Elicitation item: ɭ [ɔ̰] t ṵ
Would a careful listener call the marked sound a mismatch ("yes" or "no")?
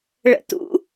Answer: yes